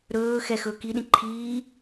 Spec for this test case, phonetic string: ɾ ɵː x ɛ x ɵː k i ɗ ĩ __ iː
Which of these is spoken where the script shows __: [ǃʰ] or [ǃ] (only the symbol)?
ǃʰ